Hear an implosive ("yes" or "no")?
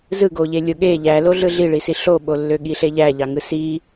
yes